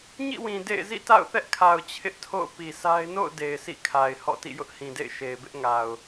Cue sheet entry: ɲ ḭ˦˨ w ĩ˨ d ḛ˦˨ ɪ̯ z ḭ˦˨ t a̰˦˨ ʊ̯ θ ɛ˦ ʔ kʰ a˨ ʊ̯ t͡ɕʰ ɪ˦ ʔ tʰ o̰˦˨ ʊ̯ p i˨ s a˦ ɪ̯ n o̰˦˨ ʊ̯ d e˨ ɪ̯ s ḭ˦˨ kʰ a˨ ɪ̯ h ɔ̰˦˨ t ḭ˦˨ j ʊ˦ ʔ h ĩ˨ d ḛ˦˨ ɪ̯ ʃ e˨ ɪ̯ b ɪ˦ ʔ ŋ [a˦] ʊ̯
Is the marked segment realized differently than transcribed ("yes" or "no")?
yes